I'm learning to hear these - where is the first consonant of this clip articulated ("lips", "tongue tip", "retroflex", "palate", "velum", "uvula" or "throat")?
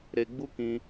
tongue tip